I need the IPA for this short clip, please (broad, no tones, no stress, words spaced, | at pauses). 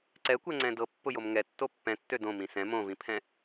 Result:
ǀɛkʷɛŋ͡ǀɛ̃ dɤpːʊjom ŋɛ tːopːɛ̃tːø dõ mĩsɛ̃ mõvĩpʰɛ̃